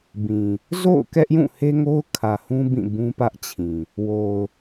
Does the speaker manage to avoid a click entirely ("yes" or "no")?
yes